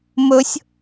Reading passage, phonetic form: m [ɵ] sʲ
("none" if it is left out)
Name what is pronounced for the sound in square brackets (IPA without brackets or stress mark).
ɵ